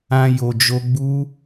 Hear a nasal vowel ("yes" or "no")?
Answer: yes